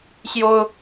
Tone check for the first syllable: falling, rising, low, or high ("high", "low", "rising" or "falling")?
high